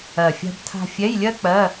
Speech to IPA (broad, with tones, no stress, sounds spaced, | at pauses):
ɜ˧˩ fʲ a̤˥ b tʰ a̤˥ fʲ ɛ˧˥˧ j lʲ ɜ˥ k͡p ɜ˧˥˧